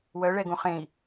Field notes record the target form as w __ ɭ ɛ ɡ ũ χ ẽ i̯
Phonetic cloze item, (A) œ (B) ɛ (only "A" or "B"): A